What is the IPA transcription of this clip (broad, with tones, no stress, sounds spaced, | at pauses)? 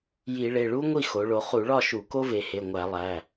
j i˧˩˧ ɭ e˩˧˩ ɭ u˥ ŋʷ i˥˨ x o˩˧ ɭ o˩˧ χ u˧˩˧ ɭ ɒ˥˨ ʃ u˧˩˧ k o˥ v e˩˧ h e˩˧˩ ŋʷ æ˧˩˧ lˠ æ˩˧˩